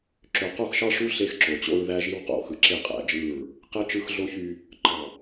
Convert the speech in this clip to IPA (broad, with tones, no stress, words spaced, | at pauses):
ǁø˨qo˦˨xʃɑ˦ʂu˦ ɬe˦xǁo˨t͡ɕo̰˦ɹ ðæ˦ʒi˦w qo̰˨xɯ˨ ǁe˦˨ qʼæ̰˨d͡ʒɯ˦˨ɹ | qe˦ t͡ʃɯ˦xɮo˦çy˦ | ǃɑ˨